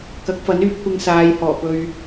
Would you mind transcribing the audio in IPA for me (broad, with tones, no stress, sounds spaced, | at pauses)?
k ɐ˨˥ k̚ f ɐ˨˥ n yː˧ p̚ kʷ ɪ˧ ŋ s aː˨˧ j h ɔː˨˩ p ɵ˧ ɥ